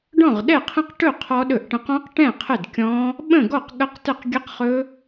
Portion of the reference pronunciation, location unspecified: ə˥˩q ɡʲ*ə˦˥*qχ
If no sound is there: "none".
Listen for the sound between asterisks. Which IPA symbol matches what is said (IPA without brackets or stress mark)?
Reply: ə˦˥